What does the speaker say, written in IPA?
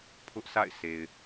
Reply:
pʰʊ˦ʔsʰa̰˦˨ɪ̯ se˨ɪ̯

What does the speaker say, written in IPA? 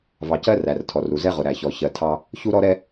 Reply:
vɑ˨cɜ˦ ræ˨rtʰɔ˨ru˨zɛ˦ ʁʊ˨ɾæ˨çɔ˨ çɜ˨tʰɑ˦ | çu˦ɾɔ˦ ɾɛ˦

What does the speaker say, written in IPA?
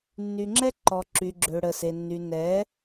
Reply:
nːy˨ŋ͡ǁɛ˦ǃɔ˨ ǁy˨ɡ͡ǁø˨ ɽə˨se˨ nːy˨nɛ˨˦

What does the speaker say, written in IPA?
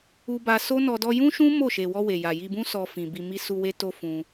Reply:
u˧ba˧so˦nɔ˧ dɔ˧jũ˦ʃũ˦ mo˦˨ʃe˨wɔ˧ we˨ja˨ji˧bũ˦ sɔ˧fĩ˨ bi˨ mi˧su˧ we˦to˦fũ˧

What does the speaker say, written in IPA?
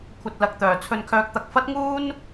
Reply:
kʷʰɐ˧t̚lɐ˨k̚t̪œː˨˩ t͡sʰɵ˧nkʰœː˧k̚t̪ɐ˧k̚ fɐ˥t̚ŋuː˥n

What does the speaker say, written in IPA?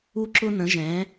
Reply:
u˥ ǁʊ˥n̪ə̃˨˥ʒɛ̃˨˥

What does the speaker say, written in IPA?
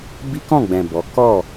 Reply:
bi˦kɔ̃˦˨ɡ͡bɛ̃˨ bɔ˨˦ kɔ˦˨

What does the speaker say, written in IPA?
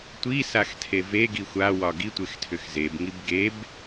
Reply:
tʷisaxtʰe veɡi xʷawɒ ɡitʷextʰʏx zebŋib ɡeb

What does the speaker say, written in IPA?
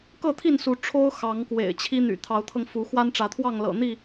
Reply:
kɤ˥˨t̪ʰi˥˨nsu˨˦ ʈ͡ʂʰo˦ʊ̯ xɑ˨˦ŋkwḛ˨˩ɪ̯t͡ɕʰi˦n̪y̰˨˩ t̪ʰɑ˨˦ʊ̯t̪ʰɤ˧ŋ fu˨˦xwa˦n ʈ͡ʂä˨˦t̪ʰwɑ˥˨ŋlɤ̰˨˩n̪i˥˨

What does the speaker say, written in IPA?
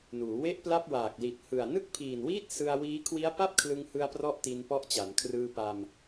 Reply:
nuː˩˦ we˥˩ʔpla˥˩p̚ waː˨˩k̚ li˨˩t̚hɯ˨˩a̯ nɯ˥˩k̚pʰiː˨˩nwiː˥˩t̚ sɯ˧a̯wiː˦˥ kʰwi˦˥a̯pa˥˩p̚kʰlɯ˧ŋhɯ˧a̯ prɔ˥˩ʔti˧npɔ˦˥ʔt͡ɕa˩˦n kʰrɯː˧pa˧m

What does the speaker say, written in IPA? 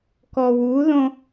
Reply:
kɔwuðõ

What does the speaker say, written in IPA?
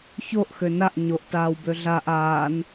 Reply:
çoʔ xønaʔ ɲoʔtaːwbø ɮaʔ aːn

